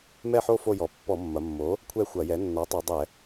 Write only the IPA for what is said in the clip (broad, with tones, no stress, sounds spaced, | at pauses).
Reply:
m ɛ˥˧ ħ o˥˧ f o˥˧ j ɔ˩˥ pː ɔ˧˩˧ mː ɐ˩˧ mː o˩˥ | kʷʰ ɛ˥˧ xʷ ɐ˧˩˧ j ɛ˩˥ nː ɔ˩˥ tˤ u˩˧ dˤ ɛ˧˩˧